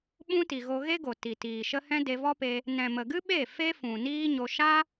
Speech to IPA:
ɓũ˦ti˨ɣo˧ ɣe˦ɡo˨ ti˨tiː˨ʃə˦ hɛ̃˦de˧vɔ˦pe˧ | nɛ̃˨mə˨ɡɨ˦ɓe˦˨ fe˦fũ˨niː˦ɲo˧ ʃa˦

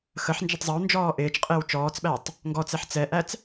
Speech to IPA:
xəħ nd͡ʒətˤzˤɪwnd͡ʒɔː ʔɪːt͡ʃqʼɪːw t͡ʃɔːt͡sɓætˤ | ŋɡɔt͡sɛħ t͡sɛʔæt͡s

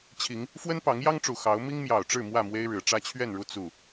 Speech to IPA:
t͡ɕʰi˨˦ŋ | fwə˦npɑ˨˦ŋjɑ˦ŋʈ͡ʂu˨˩ xɑ˨˦ʊ̯ mi˦ŋmjɑ˨˩ʊ̯ʈ͡ʂɻ̩˥˨ mwä˥˨mwe˦ɪ̯ɻɻ̩˨˩ ʈ͡ʂä˥˨t͡ɕʰɥɛ˥˨nɻu˥˨ t͡su˥˨

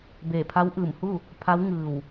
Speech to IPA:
beː˧˩pʰa˧˥wʔɯː˧˩mhu˥˨ | pʰa˧˥wŋɯː˧˩w

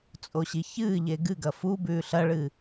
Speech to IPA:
t͡sʼoɕiçɨːʎe ɡɨɡɐ fu bʉːɬɐɭɨ

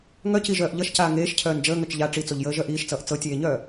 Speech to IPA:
ŋœciʒœːʔ ʎʌʃcaː ŋeːʃcʰœːn d͡ʒəːŋœt͡ʃ ʎa ʈ͡ʂit͡soʎjəːʒœ ʔiːʃt͡sʌːʔ t͡sɤtʲeːɲœː

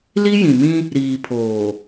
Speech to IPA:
li˦jĩ˨mĩ˦ | ɾiː˨pʰoː˨

